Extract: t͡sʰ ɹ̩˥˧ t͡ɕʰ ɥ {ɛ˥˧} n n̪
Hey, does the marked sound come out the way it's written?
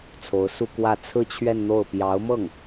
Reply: yes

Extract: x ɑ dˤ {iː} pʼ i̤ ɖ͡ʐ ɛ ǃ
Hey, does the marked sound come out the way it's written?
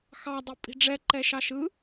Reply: no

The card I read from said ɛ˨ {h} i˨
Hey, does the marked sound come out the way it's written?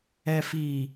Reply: no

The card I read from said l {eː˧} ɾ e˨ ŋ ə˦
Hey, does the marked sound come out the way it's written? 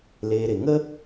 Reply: yes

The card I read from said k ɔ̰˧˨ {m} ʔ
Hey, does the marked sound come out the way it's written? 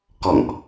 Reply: no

